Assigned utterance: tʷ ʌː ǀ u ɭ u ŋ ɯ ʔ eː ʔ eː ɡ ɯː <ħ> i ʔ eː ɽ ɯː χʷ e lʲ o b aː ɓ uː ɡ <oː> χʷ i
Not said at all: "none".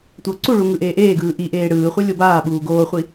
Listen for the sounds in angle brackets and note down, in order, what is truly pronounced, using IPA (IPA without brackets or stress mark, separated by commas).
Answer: ʔ, oː